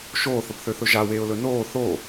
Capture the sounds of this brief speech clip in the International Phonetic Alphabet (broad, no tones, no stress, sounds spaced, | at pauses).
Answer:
ʃ oː θ ə p θ ø θ ɵ ʒ a w eː ʊ̯ l ɵ n oː θ o